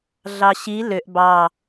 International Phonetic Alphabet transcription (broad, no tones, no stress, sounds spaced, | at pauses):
ɮ ɑ ɕ i l ø ʔ b ɑ